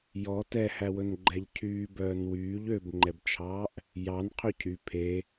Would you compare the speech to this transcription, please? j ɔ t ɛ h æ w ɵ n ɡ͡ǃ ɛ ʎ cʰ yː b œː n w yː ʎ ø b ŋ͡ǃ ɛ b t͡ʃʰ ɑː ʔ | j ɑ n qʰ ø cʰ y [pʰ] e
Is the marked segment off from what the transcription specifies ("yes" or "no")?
no